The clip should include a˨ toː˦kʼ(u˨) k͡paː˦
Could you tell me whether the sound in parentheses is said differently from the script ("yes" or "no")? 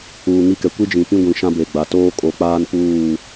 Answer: yes